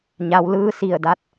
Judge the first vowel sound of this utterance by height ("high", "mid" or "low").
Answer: low